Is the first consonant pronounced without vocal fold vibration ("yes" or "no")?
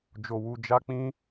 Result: no